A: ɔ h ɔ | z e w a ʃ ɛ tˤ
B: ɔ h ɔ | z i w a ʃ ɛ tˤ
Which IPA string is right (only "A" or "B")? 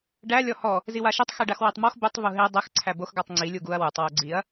B